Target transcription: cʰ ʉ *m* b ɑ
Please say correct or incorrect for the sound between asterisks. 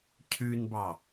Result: incorrect: n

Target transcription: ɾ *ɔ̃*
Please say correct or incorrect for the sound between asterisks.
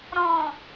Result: correct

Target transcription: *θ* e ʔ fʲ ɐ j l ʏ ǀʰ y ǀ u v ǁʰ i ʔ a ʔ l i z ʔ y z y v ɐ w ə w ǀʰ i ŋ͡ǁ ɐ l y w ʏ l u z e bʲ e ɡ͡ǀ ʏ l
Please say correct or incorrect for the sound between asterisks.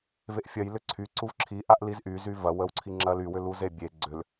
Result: incorrect: v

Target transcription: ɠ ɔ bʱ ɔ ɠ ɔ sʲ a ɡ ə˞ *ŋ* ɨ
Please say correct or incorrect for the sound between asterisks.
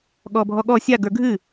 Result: incorrect: ɡʱ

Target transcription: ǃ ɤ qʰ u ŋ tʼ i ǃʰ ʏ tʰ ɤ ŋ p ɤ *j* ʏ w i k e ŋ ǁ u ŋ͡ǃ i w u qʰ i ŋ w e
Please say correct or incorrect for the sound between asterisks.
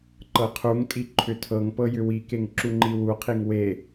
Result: correct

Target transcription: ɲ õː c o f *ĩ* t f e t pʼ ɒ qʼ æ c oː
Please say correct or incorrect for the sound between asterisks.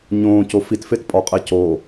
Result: incorrect: i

